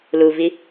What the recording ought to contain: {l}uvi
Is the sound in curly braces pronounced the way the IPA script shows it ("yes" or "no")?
yes